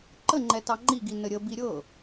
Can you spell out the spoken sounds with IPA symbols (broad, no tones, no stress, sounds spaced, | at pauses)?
ǃ ə ŋ͡ǃ ɛ t ɑ ŋ͡ǃ i ɡ i n ə ɾʲ ə b i ɾʲ ɤ